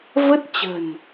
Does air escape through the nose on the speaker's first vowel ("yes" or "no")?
no